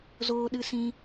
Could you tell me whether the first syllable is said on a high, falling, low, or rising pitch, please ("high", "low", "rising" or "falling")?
high